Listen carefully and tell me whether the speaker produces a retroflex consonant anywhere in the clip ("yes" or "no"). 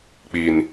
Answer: no